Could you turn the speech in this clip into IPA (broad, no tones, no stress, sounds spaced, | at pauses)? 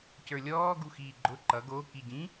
c ə˞ lʲ ɔː ɡ u x iː ɡ͡ǃ ʊ ǃ ʌ ɡ o k i ɟ ĩ